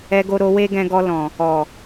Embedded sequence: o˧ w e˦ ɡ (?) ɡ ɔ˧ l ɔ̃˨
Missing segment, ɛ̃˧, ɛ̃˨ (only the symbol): ɛ̃˧